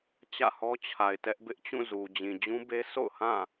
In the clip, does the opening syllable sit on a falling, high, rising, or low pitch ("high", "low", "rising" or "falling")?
falling